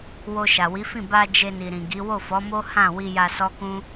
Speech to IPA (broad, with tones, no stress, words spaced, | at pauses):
wo˧ʃa˨wi˨˦fĩ˦˨ ba˧ d͡ʒe˧ni˨ɾĩ˨ɡi˨˦ wo˦˨fɔ˨˦mo˦ hã˦˨ wi˧ja˧sɔ˦kũ˦